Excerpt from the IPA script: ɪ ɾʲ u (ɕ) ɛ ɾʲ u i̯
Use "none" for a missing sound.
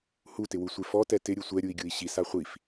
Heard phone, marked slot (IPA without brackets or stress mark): sʷ